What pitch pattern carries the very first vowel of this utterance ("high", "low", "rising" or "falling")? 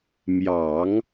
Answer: low